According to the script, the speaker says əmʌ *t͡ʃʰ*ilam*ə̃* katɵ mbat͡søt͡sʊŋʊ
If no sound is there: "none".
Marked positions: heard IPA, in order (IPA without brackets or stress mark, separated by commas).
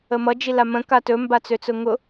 d͡ʒ, ə̃